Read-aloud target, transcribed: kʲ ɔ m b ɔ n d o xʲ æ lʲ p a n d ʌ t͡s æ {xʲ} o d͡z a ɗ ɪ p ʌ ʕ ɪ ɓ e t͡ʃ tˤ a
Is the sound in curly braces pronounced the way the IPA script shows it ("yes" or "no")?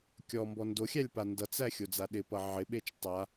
yes